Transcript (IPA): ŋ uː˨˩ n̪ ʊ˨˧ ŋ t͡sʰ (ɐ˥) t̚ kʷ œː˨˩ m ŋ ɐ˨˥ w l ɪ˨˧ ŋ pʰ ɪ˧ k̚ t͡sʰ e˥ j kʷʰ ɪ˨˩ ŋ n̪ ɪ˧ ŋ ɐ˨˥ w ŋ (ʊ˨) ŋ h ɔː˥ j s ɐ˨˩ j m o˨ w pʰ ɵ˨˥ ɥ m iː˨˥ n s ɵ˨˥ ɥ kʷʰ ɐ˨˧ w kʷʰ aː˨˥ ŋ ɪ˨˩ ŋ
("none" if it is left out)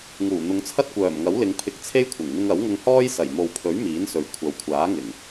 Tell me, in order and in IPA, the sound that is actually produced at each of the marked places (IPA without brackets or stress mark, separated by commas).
ɐ˥, ʊ˧